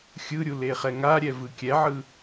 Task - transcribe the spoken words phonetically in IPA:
xʲ ɯ ɾʲ u l e χ ɛ ŋ a ɾʲ ɛ v ɯ kʲ ɛ ʕ ɯ

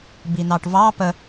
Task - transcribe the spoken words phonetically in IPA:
b i n ɑ ʈ v ɑ p ə

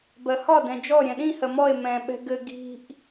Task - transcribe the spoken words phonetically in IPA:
b ɜ h ɒ d ɛ̃ d͡ʒ ɔ ɾʲ ɛ̃ ɗ ĩ h ɜ m ɔ e̯ m ɛ̃ ɓ ɛ̤ ɡ ɘ ɡ i̤ ʔ

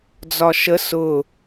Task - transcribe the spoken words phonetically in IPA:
d͡z ɒ ʃ ə s ʊ

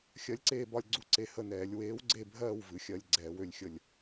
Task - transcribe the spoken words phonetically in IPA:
xʲ ɜ˨˥ lʲ ǀ eː˦˨ b ɒ˦˨ lʲ ɡ͡ǀ u˦˨ ǀ e˨˥ h ə˦˨ n ɛː˨˩˦ lʲ w eː˨˥ w ɡ͡ǀ e˦˨ bʱ ɜː˦˨ w v ɨ˨˥ xʲ ɜ˦˨ lʲ ɡ͡ǀ ɛː˨˩˦ w ø˦˨ lʲ xʲ ə˦˨ lʲ

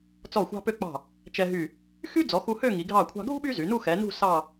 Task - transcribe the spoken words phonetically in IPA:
t͡s ɔ˧˩ xʷ ɑ̤˧ p ø˧ k͡p ɑ̤˧˩ | t͡ʃ ɛ˧ ɦ y˧˩ | x y˥ d͡z ɔ˩˧ x u˧ h ø˥˧ ŋ i˩˧ ɡʱ ɑ˧˩ kʷʰ ɑ̤˧ ɡʱ ṳ˥ ɓ y˥ z y˩˧ n u˥˧ x ɛ˩˧ n ṳ˥˧ s ɑ˥˧

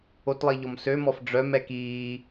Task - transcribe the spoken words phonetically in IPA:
o t lˠ i ʎ ɔ m s ø m ɔ f ɖ͡ʐ œ m ɛ k iː

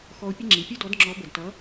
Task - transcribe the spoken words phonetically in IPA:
x ɔ˧ ʊ̯ pʲ ə˥ ŋ͡ǁ i˩ pʲ u˥ d ɔ˩˥ d ŋ͡ǁ ɔ˩˥ b ə˩ d t ʌ˩˥

